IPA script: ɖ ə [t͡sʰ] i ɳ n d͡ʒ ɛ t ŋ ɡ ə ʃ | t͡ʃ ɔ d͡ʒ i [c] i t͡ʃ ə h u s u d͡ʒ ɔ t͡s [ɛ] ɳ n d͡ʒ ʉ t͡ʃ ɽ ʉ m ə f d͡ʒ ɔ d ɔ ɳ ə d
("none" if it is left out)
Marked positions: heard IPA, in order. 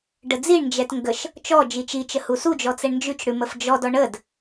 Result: d͡z, t͡ʃ, ɛ

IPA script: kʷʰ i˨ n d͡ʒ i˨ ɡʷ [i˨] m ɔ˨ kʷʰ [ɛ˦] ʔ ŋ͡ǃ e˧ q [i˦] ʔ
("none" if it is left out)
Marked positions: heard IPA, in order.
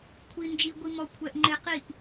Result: i˨, ɛ˨, i˦˨

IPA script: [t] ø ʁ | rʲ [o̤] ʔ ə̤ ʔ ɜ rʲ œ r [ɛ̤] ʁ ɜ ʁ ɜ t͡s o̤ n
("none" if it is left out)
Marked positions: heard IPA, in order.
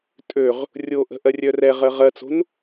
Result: tʼ, o, ɛ

